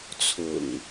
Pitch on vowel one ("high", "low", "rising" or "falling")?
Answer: low